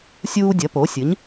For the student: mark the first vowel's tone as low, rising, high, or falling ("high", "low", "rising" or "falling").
high